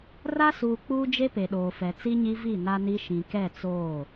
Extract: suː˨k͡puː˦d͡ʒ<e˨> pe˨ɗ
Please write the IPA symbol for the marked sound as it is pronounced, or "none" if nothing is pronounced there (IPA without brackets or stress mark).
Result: e˦